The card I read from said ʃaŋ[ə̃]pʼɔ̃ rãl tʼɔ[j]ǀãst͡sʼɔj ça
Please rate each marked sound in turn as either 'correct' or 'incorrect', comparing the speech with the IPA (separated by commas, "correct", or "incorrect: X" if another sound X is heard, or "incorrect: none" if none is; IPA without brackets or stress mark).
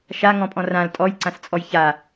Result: incorrect: ɔ̃, correct